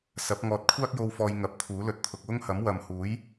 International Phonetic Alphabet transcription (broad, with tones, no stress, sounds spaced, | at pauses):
s ɐ˨˥ p̚ ŋ ɔː˨ t̚ kʷʰ aː˥ k̚ j o˧ w f ɔː˧ j ŋ ɐ˨˥ p̚ t̪ʰ uː˨˥ l ɵ˧ t̚ t̪ʰ ʊ˨ k̚ w ʊ˥ ŋ h ɐ˨˥ m w ɐ˨ m h uː˨˥ j